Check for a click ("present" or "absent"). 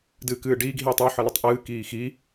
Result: absent